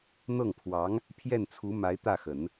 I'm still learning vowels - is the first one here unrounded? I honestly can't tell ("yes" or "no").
yes